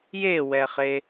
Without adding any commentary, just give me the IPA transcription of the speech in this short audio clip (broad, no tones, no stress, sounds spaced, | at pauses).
j e w ɛ χ e